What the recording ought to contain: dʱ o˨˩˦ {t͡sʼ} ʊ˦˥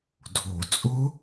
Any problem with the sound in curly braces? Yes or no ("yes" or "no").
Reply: no